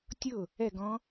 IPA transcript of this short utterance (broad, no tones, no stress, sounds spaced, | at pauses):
tʲ ʊ | ɛ ɡ ɔ̃